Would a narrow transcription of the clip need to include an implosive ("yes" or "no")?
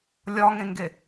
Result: no